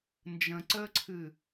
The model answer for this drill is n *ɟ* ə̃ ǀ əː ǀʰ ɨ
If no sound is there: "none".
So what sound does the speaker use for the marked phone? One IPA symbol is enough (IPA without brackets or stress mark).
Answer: d͡ʒ